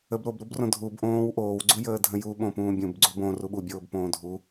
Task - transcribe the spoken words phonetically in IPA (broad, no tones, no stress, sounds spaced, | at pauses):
ə b ɾ o b ɾ u b r õ dʱ u b ʔ õː w ʔ oː w ɡ͡ǀ u j əː dʱ ə̃ j u ɓ õ p ũː bʲ ũ b ɡ͡ǀ u b õ r u ɓ u bʲ oː b p õː dʱ u